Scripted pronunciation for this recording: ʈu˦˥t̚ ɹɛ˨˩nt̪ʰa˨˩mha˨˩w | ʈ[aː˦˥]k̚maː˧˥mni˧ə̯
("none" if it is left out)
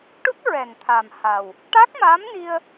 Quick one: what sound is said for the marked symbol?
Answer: a˦˥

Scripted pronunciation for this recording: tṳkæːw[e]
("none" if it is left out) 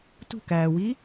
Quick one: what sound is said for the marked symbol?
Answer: i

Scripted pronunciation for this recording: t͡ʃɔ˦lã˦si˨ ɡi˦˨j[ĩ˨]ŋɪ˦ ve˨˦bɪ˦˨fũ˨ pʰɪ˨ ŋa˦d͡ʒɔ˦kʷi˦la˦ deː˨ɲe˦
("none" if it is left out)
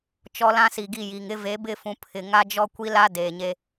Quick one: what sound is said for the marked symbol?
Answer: i˨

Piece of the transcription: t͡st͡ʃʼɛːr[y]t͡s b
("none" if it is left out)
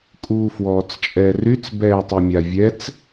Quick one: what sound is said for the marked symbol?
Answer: y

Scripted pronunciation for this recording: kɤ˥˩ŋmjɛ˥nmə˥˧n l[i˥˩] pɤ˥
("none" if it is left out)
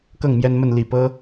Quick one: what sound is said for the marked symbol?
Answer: i˥˩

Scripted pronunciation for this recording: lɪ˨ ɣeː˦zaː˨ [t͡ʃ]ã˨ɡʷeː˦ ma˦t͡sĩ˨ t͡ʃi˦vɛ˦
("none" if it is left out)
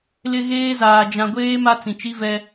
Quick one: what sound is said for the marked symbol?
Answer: d͡ʒ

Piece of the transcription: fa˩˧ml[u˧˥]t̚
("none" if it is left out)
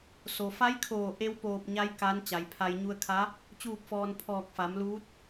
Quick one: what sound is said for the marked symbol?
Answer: uː˧˥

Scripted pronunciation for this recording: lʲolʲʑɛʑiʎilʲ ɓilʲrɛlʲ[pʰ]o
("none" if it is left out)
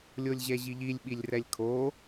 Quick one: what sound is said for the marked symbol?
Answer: kʰ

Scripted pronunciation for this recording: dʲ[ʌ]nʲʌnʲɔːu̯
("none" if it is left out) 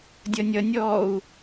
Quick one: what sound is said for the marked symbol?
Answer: ʌ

